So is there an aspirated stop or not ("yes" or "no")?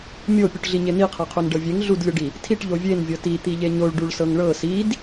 yes